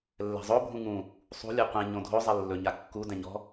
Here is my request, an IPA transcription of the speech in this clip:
lː ɛ̤ zˤ o bʱ ũ ŋ ũ | sˤ ṳ lʲ ɛ qʷ ẽ ɲ õ dʱ o zˤ ɛ lː ɵ ɲ a kː u d ɛ̃ ɲ ɔ̤

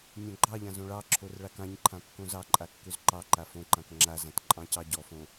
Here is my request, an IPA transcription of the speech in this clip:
nʲ õ ɡ͡ǃ ɑ ʎ ã z õ ɭ ɑ ǁʰ o r ɭ a k ã ɲ ǃʰ ã kː õ z ɑ ǃʼ a kː ø z ǃ ɑ ǃ a f õ ǃ ã k ŋ͡ǁ a z ã t ǃʼ ɑ̃ c ɑ ɟ ɔ f õ

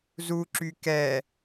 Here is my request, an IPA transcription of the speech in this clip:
z u ǁ y k ɛ

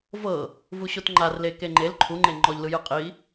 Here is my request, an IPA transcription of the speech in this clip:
v ɤ | v u ɕ o t ŋ͡ǃ a r l e k e ŋ͡ǃ e l ǃʰ u ŋ͡ǃ e ŋ͡ǃ ɔ ʎ l ɯ j ɯ qʼ i

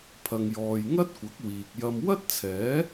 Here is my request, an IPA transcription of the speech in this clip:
pʰ ɐ˨ ŋ j ɔː˨ j ŋ ɐ˥ t̚ kʷ ɐ˨˥ k̚ w iː˨ k̚ j ɐ˧ m w ɐ˥ t̚ t͡sʰ ɛː˨˥

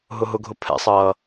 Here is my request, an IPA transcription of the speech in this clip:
ɦ ʊ ɦ ʊ ɡʱ ʊ pʰ ɛ̰ sˤ ʌː

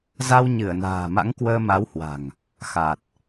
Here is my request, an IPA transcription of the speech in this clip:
z a˧ w ɲ ɨ˧˩ ə̯ n a̤ː˨˩ m a̰˧˥ ŋ k w əː˧ m a˨˦ w h w a̤˨˩ ŋ | x a˨˩ t̚

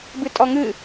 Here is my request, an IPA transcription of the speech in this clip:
b ɨ tʼ ɔ ŋ ɨ

